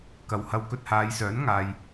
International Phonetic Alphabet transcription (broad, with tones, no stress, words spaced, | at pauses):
kɐ˨whɐ˧wkɵ˧t̚ haː˨˧jsœː˨˥n ŋaː˨j